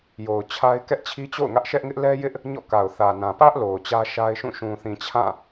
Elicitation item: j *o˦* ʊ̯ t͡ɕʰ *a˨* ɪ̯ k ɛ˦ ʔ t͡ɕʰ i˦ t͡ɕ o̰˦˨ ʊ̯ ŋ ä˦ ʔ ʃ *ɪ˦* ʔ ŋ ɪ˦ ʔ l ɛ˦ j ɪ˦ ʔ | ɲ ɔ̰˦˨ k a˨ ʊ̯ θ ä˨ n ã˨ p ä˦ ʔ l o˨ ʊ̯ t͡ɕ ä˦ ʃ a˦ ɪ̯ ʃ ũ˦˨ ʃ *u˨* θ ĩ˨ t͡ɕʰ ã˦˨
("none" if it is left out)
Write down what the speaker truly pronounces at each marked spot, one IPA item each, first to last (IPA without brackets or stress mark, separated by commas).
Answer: o˨, a˦, ɛ˦, ũ˨